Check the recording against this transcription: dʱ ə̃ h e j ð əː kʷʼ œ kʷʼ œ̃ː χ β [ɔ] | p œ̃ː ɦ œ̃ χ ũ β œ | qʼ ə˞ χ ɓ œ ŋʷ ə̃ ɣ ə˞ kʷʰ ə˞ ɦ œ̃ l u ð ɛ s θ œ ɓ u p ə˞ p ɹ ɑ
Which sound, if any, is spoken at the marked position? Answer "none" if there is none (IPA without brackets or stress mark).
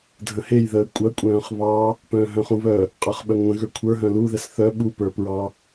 ɑ